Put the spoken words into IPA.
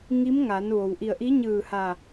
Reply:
ŋ i˧˥ m ŋ a˩˧ n ʋ o˩ w ʔ i˧˩ ə̯ ʔ i˧˥ ɲ ɯː˧˩ h a˧˩

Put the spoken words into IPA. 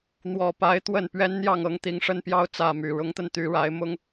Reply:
n̪ w ɔ˨˩ p a˨˦ ɪ̯ t̪ w ə˥˨ n p ɥ ɛ˦ n n̪ j ɑ˥˨ ŋ ɤ˨˦ ŋ t̪ i˨˦ ŋ ʂ ə˦ n p j ɑ˦ ʊ̯ t͡s ä˥˨ m y˨˩ ɻ ʊ˨˦ ŋ t̪ ə˧ n t̪ y˨˦ ɻ a˨˦ ɪ̯ m ʊ˦ ŋ

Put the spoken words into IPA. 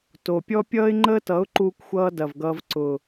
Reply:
t o˨ pʲ ɔ˦ pʲ ʌː˦ ɪ̯ ŋ͡ǃ əː˦ t ʌ˨˦ ʊ̯ ǃ uː˦ kʷ xʷ ʌː˦ d ɐ˨ v ɡ ʌː˧ v ǀ ʊ˨

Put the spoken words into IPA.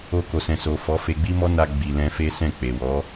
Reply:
o˧ k o˨ s ɛ̃˨ s o˨ f ɔ˨˦ f e˧ ɡ͡b i˦ m ɔ˦ n a˧ ɡ͡b i˨ l ɛ̃˧ f e˦ s ɛ̃˦˨ k͡p e˨ w ɔ˨˦

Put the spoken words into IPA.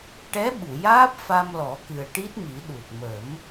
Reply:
ʈ ɛ˧˥ ɓ u˨˩˨ j aː˦˥ p̚ f a˧ m l ɔ˨˩˦ k ɨ˨˩ ə̯ ʈ i˦˥ t̚ m i˨˩˦ ɗ u˨˩ t̚ m ə˨˩˦ m

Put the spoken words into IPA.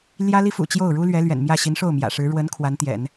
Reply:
l j ä˥ l i˥ f ṵ˨˩ t͡ɕ j o˥˩ ʊ̯ ɻ u˥ l ɥ ɛ˧˥ l ɥ ɛ̰˨˩ n m j ä˥˩ ɕ i˧˥ n ʂ o˥˩ ʊ̯ m j ä̰˨˩ ʂ ɻ̩˧˥ ɻ w ə˧˥ n kʰ w a˧˥ n t̪ j ɛ̰˨˩˦ n

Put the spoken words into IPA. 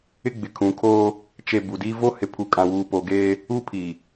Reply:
ɪ˦ ɡ͡b ɪ˨ kʰ ũ˨ kʰ oː˦ | t͡ʃ e˨ b u˨ d i˦ v o˦ h ɪ˨ pʰ u˨ kʼ ã˨ w uː˨ p o˨ ɡ eː˦ | u˦ pʰ i˨

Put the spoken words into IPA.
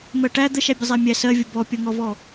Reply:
m ɜ ʈ æ d̪ ə ʃ æ bʲ ə zˤ æ mʲ æ s ɜ vʲ ʊ b ɔ pʲ ɒ ŋ ɔ v ɔ

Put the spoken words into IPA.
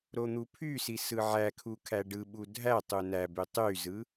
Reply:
ɾ o n̪ u pʰ y s i s ɯ ʕ æ kʰ u kʰ æ ɖ ɯ ɓ u dʱ æ tˤ u n æ b y tˤ y z ɯ

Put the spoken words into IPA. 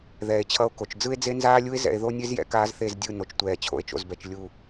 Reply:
ð ɛː˨ e̯ t͡ɕʰ ʌ˧ o̯ k o˨ t͡ʃ d͡z ɯ˦ e̯ d͡z e˦ n z aː˦ lʲ u˦ e̯ z ɛ̰˧ e̯ ð o˦ nʲ e˦ z j ɛ̰˨ k aː˦ z θ e˦˨ z dʲ ɯ˦˨ n o˨ t͡ʃ tʷ ɛː˨ t͡ɕʰ o̰˨ e̯ t͡ʃ o̰˨ z b ɛ˨ t͡ʃ lʲ u˨

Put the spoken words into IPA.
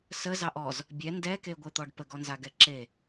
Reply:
s ə z ɑ ʔ ɔ z | bʲ ɛ n d ɛ k e ɡʷ e t̪ ɔ ɖ p ə ɡ ɔ n z a ɡ ɛ ǁ e

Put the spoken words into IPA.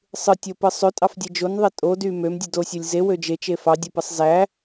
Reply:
sˤ ɯ tʲ o p ɯ sˤ ø tʼ ɑ f dʲ e d͡ʒ o n ðˤ e tʼ o d y m ø m dʲ ɯ d o sʲ o lʲ z e w ø d͡ʒ e t͡ʃ e f ɑ dʲ o p ɯ sˤ z æ

